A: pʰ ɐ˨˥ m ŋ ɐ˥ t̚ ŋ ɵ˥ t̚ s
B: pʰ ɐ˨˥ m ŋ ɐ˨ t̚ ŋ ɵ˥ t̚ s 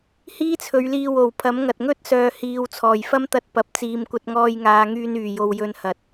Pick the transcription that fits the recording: B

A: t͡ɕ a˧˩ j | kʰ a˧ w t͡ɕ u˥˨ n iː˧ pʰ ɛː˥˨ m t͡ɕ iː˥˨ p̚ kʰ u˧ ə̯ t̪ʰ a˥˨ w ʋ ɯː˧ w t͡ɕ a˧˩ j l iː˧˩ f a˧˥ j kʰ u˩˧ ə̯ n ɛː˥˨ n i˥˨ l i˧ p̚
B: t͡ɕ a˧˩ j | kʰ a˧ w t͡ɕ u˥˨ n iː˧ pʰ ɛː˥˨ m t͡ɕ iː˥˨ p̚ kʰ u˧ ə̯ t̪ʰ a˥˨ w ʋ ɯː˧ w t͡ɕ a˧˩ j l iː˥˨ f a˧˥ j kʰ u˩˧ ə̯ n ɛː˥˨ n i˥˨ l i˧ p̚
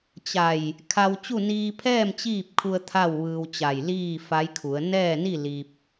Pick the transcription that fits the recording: B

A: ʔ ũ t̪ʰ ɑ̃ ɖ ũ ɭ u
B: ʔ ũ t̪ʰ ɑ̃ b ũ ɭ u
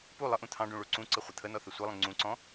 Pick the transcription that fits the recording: A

